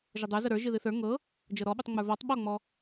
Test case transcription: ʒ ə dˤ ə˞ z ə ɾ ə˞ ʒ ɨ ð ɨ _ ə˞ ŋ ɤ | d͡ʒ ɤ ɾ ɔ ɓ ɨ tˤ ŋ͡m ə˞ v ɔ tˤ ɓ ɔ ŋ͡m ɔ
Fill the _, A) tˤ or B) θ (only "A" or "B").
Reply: B